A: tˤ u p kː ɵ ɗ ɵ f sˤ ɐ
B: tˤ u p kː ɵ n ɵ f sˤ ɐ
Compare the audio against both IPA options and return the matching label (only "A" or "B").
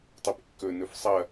B